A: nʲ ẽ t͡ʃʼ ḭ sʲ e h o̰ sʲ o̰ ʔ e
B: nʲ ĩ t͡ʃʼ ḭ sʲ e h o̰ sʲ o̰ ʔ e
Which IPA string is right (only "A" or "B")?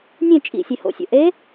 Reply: A